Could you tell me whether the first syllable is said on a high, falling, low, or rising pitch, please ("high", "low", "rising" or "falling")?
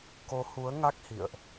rising